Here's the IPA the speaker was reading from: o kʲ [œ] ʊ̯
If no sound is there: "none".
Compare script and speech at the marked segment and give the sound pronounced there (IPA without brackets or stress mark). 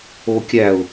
æ